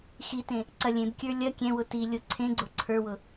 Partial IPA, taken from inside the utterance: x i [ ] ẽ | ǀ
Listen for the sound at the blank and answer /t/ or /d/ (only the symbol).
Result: t